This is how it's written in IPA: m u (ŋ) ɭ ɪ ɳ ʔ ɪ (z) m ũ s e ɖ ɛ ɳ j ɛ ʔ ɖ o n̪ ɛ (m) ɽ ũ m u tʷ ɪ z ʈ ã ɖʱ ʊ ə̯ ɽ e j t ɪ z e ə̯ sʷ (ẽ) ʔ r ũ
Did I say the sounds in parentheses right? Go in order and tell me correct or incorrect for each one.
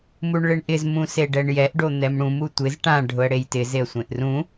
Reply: incorrect: ɳ, correct, correct, correct

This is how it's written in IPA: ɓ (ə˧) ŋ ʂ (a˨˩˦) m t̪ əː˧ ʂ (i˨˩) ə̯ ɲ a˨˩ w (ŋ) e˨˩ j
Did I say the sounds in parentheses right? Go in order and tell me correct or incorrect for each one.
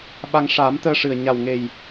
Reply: incorrect: a˧, incorrect: aː˨˩˦, incorrect: ɨ˨˩, correct

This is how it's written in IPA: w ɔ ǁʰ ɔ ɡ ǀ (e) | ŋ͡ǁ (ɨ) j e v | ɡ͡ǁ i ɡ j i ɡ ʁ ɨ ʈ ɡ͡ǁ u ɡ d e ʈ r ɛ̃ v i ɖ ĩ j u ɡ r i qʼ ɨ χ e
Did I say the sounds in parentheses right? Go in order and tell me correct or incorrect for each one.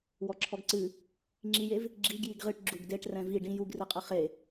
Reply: incorrect: ɨ, incorrect: i

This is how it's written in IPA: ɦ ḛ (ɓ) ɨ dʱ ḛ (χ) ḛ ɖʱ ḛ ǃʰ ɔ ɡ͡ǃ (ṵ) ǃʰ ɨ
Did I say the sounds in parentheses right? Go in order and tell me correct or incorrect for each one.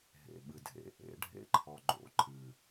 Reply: correct, incorrect: ʔ, incorrect: o̰

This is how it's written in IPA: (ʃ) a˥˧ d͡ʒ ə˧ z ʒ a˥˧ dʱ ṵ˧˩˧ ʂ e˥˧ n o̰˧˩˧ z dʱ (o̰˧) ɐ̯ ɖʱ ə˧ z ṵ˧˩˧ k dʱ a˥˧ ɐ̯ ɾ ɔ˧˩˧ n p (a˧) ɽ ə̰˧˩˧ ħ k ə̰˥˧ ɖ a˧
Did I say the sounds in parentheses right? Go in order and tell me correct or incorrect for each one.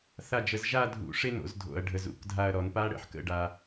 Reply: incorrect: θ, incorrect: o̰˧˩˧, incorrect: a˦˥

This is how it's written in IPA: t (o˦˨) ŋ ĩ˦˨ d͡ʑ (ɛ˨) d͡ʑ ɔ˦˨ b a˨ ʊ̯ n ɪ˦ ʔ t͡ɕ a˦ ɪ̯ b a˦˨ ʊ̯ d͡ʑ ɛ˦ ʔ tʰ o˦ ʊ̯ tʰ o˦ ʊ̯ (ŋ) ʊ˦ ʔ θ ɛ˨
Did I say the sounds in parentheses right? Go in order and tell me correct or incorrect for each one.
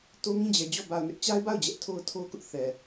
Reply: incorrect: o˦, correct, incorrect: k

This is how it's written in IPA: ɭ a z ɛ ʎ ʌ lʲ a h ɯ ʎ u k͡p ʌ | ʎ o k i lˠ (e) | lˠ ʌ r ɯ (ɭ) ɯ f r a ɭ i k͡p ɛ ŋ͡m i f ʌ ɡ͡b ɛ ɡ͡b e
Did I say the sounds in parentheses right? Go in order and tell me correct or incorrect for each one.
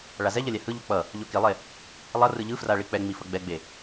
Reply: correct, incorrect: ʎ

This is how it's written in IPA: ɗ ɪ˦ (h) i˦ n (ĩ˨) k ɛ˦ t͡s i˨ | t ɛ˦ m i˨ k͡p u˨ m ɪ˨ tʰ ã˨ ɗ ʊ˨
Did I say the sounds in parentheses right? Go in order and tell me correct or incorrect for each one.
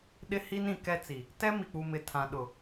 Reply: correct, correct

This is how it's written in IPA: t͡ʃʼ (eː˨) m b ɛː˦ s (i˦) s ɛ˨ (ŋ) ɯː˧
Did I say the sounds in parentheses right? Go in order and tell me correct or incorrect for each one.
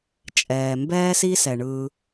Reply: incorrect: ɛː˨, correct, incorrect: ɳ

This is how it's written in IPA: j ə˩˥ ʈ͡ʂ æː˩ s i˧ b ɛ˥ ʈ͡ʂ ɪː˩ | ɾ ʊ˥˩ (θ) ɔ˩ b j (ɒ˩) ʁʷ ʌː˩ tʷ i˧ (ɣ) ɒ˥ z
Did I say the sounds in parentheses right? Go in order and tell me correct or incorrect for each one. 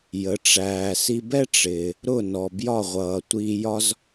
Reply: incorrect: n, incorrect: ɒ˥˩, incorrect: j

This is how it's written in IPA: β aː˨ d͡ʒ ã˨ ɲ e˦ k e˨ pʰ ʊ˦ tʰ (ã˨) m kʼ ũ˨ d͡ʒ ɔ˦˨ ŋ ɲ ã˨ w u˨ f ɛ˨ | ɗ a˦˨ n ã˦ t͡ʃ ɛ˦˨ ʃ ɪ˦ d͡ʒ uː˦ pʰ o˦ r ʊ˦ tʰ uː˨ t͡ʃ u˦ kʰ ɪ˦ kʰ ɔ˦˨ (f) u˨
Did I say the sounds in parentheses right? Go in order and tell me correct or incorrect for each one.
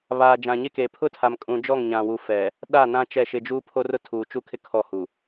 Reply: incorrect: a˨, incorrect: h

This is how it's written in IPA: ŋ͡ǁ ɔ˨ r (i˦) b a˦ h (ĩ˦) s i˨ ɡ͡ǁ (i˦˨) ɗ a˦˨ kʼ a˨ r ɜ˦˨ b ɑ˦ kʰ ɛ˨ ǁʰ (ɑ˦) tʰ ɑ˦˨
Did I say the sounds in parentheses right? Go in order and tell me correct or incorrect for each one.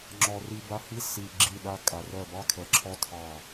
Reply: correct, incorrect: i˦, correct, incorrect: ɔ˦

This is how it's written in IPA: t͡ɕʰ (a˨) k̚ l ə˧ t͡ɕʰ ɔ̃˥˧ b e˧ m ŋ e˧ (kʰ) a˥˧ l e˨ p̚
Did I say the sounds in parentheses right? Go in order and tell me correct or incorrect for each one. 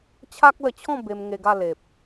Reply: incorrect: a˦, incorrect: ɡ

